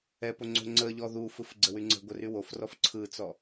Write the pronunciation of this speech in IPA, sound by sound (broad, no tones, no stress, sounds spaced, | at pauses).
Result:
ɛ p o ŋ͡ǀ o̤ ŋ͡ǀ ə ʎ ɔ ð u f ɯ f ɡ͡ǀ ə w y ŋ͡ǀ ə̤ ɡʷ ə r y w o f r ɔ f ǀʰ ɯ t͡s ɔ